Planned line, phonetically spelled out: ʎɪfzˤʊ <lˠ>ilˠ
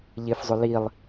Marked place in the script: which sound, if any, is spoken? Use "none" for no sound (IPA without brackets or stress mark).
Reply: l